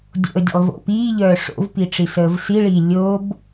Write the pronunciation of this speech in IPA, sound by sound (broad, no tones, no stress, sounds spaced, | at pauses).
dʲ o̰ ə̯ dʲ ə̰ lˠ v o̰ p iː ʎ œː ʂ o̰ v p i ʈ͡ʂ i s əː v s i ɭ iː lʲ o b